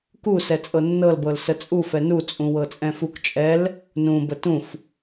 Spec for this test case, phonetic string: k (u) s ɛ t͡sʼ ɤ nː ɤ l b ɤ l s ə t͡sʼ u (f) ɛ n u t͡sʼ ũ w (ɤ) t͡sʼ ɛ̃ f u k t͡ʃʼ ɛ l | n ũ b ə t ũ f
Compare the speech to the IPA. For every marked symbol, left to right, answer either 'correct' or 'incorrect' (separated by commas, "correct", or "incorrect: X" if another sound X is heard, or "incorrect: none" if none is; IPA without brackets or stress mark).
correct, correct, correct